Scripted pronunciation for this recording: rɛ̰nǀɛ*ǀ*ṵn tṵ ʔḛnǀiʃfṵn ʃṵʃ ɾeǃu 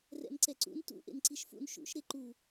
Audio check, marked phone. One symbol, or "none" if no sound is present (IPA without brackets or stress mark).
ǀ